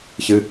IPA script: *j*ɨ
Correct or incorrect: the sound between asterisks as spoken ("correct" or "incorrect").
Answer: incorrect